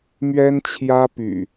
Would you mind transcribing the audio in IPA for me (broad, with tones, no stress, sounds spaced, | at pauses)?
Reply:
m ɥ ɛ˦ n t͡ɕʰ j ä˦ p y̰˨˩